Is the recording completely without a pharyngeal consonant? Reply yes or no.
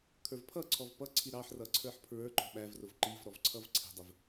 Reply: no